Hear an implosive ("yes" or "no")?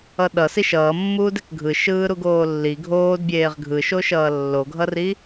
yes